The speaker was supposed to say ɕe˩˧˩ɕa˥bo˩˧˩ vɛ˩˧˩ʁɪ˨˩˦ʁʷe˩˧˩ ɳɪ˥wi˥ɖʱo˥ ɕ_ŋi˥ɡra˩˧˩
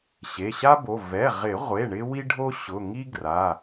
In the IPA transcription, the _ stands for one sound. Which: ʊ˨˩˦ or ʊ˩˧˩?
ʊ˩˧˩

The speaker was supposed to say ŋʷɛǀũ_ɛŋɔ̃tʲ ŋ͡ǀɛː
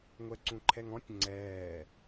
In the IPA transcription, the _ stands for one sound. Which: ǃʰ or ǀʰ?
ǃʰ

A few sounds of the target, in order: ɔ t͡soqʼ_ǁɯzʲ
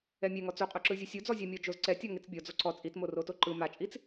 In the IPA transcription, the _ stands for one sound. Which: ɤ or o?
o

